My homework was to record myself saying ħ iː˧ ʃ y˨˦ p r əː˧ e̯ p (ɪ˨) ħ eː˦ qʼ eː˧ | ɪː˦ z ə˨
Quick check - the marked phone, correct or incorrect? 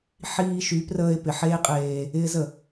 correct